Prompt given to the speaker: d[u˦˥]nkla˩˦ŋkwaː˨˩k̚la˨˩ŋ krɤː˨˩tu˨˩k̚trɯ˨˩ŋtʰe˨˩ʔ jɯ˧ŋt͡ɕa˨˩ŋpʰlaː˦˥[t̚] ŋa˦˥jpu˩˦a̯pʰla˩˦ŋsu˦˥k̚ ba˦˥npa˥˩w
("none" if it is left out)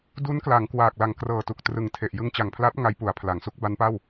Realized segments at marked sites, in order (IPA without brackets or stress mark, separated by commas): u˦˥, t̚